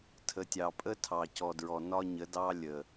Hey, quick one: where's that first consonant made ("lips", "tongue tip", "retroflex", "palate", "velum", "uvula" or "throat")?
tongue tip